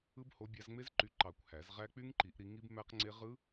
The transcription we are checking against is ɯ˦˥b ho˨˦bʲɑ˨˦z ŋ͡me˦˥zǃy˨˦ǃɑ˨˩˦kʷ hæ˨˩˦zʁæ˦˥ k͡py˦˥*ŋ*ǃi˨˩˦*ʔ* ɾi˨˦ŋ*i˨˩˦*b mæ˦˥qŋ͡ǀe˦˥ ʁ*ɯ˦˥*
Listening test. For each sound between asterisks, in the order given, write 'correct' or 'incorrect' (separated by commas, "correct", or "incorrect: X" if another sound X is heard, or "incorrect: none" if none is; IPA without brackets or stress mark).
correct, correct, incorrect: i˦˥, correct